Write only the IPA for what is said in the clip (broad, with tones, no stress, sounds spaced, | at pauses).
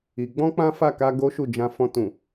i˧ ɡ͡b ɔ̃˦ k͡p ã˦ f a˦˨ k a˧ ɡ o˦ ʃ u˦˨ d͡ʒ ã˧ f ɔ̃˧ t ũ˨